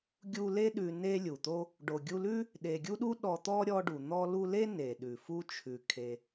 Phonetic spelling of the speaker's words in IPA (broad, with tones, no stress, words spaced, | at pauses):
ɡʲu˦ le˦ɗʉ˨ ne˦lʲu˩t̪o˦ | ɖo˨ ɡʲu˦lʉ˥ | ɗe˨ɡʲu˥ɗu˥ ɗɔ˨t̪ɔ˦ ɾʲɔ˦ɖu˩ n̪ɔ˦lu˦le˥ ne˩ɗʉ˩ fu˦t͡ʃʰʉ˩ kʰe˨